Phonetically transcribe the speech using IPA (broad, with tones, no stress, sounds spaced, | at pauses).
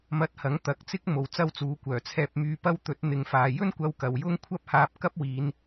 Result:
m ɐ˧ t̚ h ɐ˨˥ ŋ t̪ ɐ˨˥ k̚ t͡s ɪ˥ k̚ m o˨˧ w t͡s ɐ˥ w t͡s uː˨˥ kʷ œː˨˩ t͡sʰ ɛː˧ p̚ m yː˧ p ɐ˥ w t̪ ɵ˨˥ t̚ n̪ ɪ˨˧ ŋ f aː˨ j ɵ˥ n kʷ ɐ˧ w k ɐ˨ w j ʊ˥ ŋ kʷʰ ɐ˥ p̚ h aː˧ p̚ k ɐ˥ p̚ w iː˨˧ n